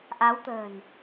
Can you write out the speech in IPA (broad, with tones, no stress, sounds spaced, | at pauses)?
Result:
ʔ a˨˦ w t̪ ə̤ː˨˩ n